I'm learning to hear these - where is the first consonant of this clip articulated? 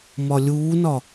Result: lips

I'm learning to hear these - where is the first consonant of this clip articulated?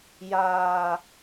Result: palate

